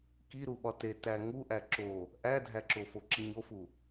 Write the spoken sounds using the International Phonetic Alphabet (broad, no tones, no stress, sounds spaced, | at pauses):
k i ɾ u ɓ ɒ t e t æ ŋ u ʔ æ ǁ o | ʔ æ dʱ æ ǁ o f o ǁ i ɲ o f u